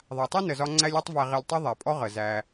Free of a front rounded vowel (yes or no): yes